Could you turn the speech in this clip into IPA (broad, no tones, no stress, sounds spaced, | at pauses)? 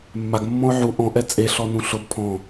mː a ɡ mː ɔ̃ ʊ̯ ʕ u ʔ ɔ̃ ʔ ɛ t͡sʼ e ɬ ɔ n ũ ɬ ʊ b pʰ ɔ̃